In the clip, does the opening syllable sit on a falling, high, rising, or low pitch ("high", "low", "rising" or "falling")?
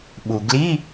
low